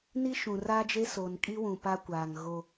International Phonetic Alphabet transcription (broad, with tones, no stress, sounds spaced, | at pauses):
n i˦ ʃ ũ˨ r a˦ d͡ʒ e˦ s o˨ n kʼ i˦ w ũ˨ p a˦ kʷ aː˨ ŋ ɣ o˦